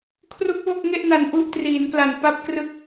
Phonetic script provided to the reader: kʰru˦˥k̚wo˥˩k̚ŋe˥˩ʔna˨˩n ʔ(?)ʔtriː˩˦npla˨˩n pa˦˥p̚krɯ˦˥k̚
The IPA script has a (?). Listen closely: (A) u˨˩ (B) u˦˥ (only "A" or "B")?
B